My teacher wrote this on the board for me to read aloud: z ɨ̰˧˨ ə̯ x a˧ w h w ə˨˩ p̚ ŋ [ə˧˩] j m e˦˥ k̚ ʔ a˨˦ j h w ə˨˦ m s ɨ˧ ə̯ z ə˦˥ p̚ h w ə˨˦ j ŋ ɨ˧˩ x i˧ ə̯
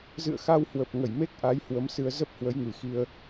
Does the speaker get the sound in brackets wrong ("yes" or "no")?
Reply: no